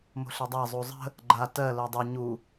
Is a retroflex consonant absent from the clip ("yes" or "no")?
yes